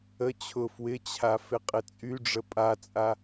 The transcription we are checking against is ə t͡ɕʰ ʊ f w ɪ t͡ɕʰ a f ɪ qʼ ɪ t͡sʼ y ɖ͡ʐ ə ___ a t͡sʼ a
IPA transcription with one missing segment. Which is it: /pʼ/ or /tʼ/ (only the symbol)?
pʼ